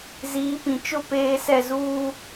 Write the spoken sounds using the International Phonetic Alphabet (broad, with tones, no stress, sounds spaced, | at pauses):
z iː˨˦ p ĩ˨ t͡ʃ ʊ˦˨ p eː˦ s ɛ˦˨ z uː˦